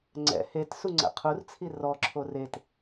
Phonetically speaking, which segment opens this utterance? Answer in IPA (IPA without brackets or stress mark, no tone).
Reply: ŋ͡ǀ